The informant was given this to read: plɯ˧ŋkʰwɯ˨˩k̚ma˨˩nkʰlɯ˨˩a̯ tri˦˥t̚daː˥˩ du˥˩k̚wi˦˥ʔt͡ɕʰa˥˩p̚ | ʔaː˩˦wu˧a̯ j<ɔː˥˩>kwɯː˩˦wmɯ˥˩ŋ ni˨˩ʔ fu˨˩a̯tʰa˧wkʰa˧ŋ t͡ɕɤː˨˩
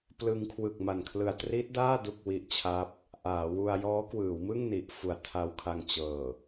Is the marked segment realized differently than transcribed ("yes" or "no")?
yes